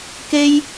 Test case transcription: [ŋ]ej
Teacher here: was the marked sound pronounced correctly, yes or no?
no